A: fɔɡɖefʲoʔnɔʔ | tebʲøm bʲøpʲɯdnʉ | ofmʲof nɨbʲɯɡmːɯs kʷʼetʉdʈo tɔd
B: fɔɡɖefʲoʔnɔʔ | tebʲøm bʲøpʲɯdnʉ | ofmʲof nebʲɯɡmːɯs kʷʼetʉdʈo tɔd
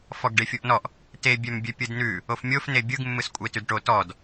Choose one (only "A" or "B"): B